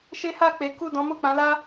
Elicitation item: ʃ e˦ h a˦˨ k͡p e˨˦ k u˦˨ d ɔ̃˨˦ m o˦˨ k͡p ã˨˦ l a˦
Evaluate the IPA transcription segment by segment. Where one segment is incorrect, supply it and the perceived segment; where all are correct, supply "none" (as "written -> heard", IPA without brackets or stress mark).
none